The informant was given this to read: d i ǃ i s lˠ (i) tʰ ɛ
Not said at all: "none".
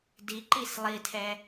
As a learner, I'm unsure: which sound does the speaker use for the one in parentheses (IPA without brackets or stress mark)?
i